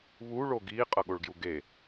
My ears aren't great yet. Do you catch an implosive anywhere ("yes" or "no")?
yes